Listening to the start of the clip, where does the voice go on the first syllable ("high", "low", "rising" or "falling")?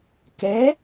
rising